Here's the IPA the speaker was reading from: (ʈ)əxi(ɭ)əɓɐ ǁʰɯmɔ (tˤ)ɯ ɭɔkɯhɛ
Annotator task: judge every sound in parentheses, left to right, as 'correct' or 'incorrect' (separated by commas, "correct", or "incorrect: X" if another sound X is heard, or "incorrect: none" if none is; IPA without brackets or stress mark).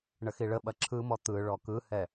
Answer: incorrect: ɳ, correct, incorrect: t̪